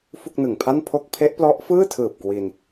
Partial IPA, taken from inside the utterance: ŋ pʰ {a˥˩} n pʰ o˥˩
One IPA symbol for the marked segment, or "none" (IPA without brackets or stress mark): a˥˩